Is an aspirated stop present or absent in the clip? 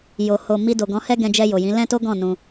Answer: absent